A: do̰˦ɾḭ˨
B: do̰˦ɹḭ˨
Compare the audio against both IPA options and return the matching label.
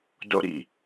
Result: A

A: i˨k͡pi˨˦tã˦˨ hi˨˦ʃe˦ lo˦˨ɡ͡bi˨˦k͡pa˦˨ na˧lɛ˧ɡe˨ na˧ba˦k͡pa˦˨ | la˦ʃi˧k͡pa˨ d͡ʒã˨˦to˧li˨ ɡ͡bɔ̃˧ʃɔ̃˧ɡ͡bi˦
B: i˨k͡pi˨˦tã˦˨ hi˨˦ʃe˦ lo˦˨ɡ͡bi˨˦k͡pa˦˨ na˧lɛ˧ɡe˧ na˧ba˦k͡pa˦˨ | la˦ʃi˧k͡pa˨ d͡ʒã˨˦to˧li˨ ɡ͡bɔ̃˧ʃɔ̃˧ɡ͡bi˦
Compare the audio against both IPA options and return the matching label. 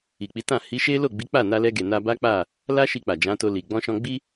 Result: A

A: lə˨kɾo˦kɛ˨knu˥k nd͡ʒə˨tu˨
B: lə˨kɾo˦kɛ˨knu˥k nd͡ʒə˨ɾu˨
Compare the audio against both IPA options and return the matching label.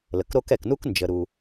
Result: B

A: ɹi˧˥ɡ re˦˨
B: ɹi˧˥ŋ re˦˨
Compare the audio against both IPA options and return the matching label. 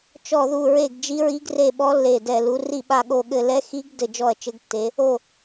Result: A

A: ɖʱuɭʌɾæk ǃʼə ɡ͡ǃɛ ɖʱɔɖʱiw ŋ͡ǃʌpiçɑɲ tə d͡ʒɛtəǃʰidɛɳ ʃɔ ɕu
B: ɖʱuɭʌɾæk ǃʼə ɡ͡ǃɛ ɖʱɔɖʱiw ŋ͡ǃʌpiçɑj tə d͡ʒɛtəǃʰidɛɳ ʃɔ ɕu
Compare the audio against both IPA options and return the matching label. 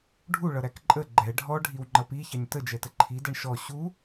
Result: A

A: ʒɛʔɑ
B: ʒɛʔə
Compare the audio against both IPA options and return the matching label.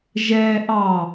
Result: A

